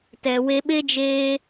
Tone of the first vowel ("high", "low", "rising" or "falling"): low